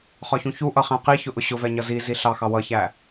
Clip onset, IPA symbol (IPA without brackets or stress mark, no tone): χ